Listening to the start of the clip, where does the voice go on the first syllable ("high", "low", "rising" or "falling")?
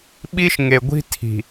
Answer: high